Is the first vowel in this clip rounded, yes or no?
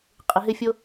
no